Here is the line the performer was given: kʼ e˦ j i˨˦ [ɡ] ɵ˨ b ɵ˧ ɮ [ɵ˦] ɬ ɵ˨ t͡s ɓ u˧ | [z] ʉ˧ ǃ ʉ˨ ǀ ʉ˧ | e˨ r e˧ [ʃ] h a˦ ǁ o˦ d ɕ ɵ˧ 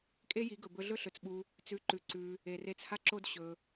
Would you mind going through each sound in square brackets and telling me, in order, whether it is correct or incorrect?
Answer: correct, correct, incorrect: t͡s, incorrect: t͡s

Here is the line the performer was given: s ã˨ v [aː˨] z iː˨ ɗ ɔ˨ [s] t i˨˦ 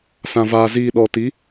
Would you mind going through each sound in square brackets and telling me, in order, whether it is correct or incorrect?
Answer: correct, incorrect: none

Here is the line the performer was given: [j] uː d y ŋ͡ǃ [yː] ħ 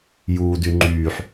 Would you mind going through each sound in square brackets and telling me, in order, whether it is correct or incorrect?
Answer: correct, correct

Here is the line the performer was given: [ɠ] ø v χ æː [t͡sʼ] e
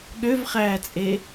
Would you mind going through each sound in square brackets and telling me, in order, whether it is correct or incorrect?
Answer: correct, correct

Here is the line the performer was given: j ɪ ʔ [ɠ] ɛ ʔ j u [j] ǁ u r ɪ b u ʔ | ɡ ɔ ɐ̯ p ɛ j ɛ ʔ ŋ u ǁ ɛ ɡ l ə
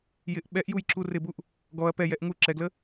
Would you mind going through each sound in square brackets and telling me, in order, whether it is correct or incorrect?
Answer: incorrect: ɓ, correct

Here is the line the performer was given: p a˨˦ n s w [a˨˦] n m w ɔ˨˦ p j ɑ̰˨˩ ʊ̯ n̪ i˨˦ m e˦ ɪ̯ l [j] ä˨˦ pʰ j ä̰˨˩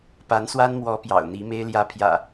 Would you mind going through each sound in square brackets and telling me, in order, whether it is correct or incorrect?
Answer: incorrect: a˦, correct

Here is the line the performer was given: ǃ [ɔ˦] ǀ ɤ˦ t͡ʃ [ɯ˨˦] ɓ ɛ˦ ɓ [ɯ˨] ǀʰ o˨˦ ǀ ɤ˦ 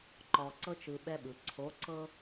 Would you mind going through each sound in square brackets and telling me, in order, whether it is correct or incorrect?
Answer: incorrect: ɔ˨, incorrect: ɯ˨, correct

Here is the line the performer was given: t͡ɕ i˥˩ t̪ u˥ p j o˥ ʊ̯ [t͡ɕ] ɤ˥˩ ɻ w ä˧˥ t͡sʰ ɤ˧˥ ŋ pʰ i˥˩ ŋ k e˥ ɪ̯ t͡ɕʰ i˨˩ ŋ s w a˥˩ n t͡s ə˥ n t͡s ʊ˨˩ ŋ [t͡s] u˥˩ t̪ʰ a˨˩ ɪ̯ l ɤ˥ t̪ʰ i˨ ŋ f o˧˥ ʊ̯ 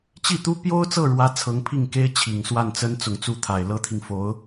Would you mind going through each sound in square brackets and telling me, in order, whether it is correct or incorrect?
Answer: incorrect: t͡s, correct

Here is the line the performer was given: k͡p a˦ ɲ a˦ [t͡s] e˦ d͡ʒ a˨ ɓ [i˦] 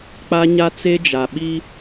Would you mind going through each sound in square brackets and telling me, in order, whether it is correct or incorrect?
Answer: correct, correct

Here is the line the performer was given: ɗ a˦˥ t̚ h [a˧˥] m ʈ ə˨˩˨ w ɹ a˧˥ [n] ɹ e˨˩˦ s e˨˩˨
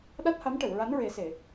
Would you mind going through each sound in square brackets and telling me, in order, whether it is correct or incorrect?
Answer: correct, correct

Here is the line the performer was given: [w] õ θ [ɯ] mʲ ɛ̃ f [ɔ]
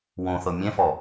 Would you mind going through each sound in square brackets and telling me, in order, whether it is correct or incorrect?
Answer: correct, incorrect: ɤ, correct

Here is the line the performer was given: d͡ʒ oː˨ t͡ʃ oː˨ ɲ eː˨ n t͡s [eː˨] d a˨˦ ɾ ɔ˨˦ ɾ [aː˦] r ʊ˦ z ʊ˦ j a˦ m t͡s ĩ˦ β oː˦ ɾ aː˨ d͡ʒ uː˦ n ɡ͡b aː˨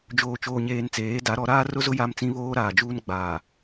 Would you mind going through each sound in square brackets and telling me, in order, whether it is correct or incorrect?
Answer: incorrect: eː˨˦, correct

